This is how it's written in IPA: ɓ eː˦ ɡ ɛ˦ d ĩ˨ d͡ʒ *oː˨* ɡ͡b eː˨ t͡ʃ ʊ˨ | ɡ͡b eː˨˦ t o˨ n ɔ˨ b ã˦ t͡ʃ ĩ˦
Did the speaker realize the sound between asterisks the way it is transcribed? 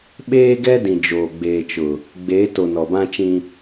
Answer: yes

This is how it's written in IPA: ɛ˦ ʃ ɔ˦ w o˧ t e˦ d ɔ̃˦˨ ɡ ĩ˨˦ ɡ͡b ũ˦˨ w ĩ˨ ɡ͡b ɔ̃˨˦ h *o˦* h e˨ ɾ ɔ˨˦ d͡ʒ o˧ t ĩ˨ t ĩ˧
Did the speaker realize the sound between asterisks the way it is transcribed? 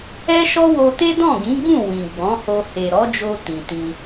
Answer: no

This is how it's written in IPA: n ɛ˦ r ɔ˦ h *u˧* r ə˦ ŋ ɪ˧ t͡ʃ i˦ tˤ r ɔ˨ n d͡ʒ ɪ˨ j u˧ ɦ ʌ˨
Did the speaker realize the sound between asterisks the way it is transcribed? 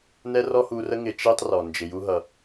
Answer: yes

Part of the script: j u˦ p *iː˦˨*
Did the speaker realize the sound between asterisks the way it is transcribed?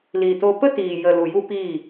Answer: yes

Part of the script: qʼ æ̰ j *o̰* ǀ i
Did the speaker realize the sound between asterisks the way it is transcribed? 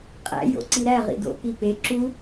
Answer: yes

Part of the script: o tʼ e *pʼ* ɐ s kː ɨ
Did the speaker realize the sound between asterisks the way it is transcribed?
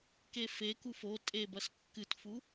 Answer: no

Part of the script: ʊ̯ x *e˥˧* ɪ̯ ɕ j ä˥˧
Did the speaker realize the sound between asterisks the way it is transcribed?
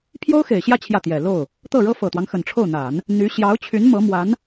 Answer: no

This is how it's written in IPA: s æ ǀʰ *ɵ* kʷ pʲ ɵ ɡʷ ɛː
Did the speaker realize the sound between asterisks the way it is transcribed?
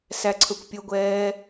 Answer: yes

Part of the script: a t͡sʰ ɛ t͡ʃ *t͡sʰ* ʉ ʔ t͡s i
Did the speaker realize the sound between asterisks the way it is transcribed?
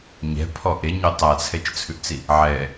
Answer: yes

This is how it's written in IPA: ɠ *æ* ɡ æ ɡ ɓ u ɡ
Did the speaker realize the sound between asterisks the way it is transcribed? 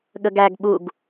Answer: no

